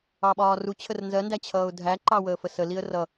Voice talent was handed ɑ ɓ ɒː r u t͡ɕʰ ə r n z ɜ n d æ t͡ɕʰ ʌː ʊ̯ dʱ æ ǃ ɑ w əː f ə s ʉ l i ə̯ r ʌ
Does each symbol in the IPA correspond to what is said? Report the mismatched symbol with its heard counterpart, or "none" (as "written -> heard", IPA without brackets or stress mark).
ʉ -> ə